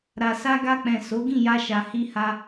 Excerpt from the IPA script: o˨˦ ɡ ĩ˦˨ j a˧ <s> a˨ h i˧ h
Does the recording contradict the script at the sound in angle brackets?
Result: yes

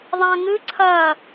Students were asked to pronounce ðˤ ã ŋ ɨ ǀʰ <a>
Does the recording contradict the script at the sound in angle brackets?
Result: yes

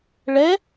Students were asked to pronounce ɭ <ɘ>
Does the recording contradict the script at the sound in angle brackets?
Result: yes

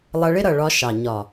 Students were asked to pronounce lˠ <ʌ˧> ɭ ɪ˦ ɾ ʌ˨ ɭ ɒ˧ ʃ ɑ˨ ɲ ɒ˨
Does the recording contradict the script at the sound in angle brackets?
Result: no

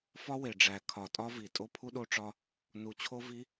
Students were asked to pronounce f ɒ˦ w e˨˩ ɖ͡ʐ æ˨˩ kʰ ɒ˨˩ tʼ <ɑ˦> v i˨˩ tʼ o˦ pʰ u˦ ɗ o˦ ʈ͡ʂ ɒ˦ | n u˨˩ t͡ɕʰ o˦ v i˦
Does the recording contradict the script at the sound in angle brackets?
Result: yes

